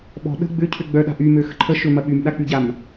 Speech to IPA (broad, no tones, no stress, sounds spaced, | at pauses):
ɓ ɔ̤ ɗ ə̤ ɡ͡b ʏ cʰ ʏ ɡ͡b œ ɗ a̤ ʔ y m ø x ə̤ ǃʰ ə ʃ ø m ɐ ɓ y m ɗ a k͡p y ɟ a m